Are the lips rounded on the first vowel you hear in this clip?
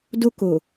yes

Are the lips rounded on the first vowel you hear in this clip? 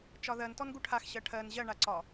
yes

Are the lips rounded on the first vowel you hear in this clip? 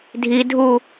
no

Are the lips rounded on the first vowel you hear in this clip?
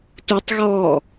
yes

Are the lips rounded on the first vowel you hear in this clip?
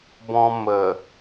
yes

